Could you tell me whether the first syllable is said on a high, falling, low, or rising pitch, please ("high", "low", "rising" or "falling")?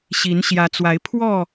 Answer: rising